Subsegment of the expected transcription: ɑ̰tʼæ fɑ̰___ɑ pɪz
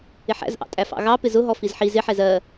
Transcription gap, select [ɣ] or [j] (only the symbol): ɣ